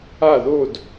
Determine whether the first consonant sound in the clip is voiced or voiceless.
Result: voiced